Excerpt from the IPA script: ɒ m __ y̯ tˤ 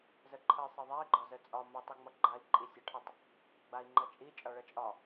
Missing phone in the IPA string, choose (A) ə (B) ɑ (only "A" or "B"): A